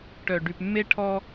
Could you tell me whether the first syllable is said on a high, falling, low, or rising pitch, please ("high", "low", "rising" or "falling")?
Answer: low